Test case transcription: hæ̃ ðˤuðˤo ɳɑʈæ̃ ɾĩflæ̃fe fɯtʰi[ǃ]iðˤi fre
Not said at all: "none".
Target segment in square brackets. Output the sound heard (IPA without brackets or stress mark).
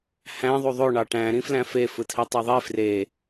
tˤ